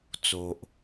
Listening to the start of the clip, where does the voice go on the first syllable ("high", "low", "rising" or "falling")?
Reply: low